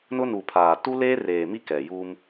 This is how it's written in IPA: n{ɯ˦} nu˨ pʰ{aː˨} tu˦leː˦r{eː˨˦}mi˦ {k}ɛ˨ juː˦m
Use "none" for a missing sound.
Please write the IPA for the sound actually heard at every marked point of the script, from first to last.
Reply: ʊ˦, aː˨, eː˨, k

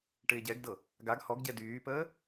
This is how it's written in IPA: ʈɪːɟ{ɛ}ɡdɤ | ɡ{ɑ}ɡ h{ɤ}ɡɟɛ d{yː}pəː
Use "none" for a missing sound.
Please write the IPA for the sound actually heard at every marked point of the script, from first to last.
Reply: ɛ, a, ɔ, yː

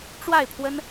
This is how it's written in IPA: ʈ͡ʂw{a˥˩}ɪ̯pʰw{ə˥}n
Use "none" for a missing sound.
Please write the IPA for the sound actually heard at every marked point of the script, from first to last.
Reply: a˥˩, ə˥

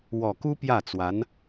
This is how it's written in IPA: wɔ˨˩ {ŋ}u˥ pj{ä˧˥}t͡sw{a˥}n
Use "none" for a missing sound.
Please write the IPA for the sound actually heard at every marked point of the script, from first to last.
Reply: k, ä˥˩, a˧˥

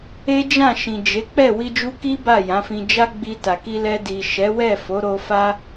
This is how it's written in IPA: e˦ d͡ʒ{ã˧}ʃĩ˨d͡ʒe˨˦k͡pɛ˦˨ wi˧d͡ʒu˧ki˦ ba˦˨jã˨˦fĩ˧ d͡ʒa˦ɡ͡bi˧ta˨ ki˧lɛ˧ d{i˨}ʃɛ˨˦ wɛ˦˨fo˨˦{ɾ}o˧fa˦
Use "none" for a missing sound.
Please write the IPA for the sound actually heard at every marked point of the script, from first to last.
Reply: ã˦˨, i˨, ɾ

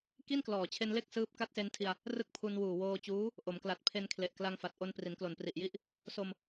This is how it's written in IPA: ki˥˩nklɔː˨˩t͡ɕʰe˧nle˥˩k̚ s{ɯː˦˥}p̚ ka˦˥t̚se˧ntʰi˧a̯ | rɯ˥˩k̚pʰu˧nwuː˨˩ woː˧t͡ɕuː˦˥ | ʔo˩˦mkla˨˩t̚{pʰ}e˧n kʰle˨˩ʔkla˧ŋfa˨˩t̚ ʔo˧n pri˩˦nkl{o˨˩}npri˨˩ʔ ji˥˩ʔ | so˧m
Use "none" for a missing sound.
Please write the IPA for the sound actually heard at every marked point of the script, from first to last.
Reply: ɯː˦˥, pʰ, o˨˩

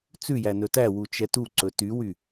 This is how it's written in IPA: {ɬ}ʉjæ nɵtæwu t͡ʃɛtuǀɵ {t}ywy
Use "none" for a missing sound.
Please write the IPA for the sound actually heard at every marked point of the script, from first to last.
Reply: t͡s, t

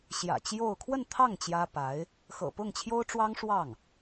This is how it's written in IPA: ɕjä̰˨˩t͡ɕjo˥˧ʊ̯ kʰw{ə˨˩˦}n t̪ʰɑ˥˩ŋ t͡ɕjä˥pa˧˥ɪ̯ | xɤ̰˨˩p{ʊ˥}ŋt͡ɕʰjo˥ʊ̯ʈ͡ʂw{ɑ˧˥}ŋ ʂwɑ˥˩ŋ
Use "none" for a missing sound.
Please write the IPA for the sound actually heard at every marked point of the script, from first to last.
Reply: ə˥˧, ʊ˥˩, ɑ˥

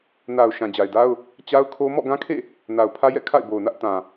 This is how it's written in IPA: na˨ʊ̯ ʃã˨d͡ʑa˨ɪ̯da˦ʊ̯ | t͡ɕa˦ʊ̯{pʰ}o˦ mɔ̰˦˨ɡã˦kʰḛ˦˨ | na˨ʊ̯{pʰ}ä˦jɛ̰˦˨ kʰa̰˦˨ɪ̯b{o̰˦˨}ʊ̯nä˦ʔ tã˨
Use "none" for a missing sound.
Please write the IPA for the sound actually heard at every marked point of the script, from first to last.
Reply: kʰ, pʰ, o˨

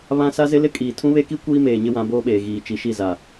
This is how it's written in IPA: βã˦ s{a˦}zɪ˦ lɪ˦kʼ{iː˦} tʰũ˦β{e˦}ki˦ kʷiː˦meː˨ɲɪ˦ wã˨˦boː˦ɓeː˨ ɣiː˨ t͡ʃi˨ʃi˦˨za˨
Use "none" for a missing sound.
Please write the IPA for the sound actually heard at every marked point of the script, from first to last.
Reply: a˦, iː˨, e˦

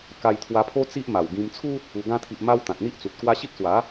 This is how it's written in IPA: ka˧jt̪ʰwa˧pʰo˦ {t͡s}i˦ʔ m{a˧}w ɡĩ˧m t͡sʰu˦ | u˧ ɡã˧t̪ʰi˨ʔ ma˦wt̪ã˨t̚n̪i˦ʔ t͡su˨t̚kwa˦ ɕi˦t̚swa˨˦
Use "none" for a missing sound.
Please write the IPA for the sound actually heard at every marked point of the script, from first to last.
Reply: t͡s, a˨˩

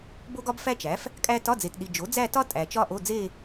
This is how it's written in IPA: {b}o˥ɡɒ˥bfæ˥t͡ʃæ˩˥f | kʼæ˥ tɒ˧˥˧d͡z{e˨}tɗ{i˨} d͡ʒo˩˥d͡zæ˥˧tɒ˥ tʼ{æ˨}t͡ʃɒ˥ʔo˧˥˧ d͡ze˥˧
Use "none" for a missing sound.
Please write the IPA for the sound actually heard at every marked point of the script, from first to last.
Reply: b, e˨, i˨, æ˨

